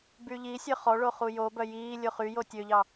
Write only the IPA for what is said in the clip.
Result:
b y ʎ i sʲ œ χ ɔ ɭ o χ u j o b œ j iː lʲ o χ y j o tʲ ø ʎ ɑ

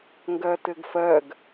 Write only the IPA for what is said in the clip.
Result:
ŋ ɡ ɜ t ɘ ɡ f ɜ ɡ

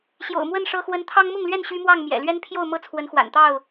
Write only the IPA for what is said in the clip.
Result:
ɕ j o̰˨˩ ʊ̯ m w ə˥˨ n ʂ ɤ˦ x w ə˦ n t̪ʰ ɑ˦ ŋ m ʊ˥˨ ŋ l ɥ ɛ˥˨ n ɕ y˦ m w ɑ˥˨ ŋ m j ɛ̰˨˩ l ɥ ɛ˦ n pʰ j o˥˨ ʊ̯ m ɤ˦ t͡sʰ w ə˨˦ n x w a̰˨˩ n t̪ ɑ˥˨ ʊ̯

